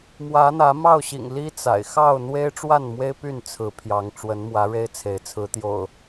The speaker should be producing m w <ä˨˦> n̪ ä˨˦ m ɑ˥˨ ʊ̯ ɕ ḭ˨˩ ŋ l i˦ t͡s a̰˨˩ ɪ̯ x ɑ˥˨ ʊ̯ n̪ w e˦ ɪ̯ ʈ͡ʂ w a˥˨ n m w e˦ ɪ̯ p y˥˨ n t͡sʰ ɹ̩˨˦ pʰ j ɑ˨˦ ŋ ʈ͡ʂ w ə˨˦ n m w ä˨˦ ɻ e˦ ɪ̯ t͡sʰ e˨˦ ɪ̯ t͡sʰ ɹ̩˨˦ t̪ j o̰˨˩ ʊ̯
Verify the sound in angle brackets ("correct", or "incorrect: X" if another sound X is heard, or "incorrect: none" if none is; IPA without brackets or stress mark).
correct